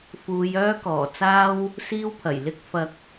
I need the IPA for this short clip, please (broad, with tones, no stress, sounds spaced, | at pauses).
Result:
f uː˨˧ j œː˥ k ɔː˨˩ t͡s aː˥ w | s iː˥ w pʰ ɐ˨˩ j l ɪ˥ k̚ f ɐ˧ k̚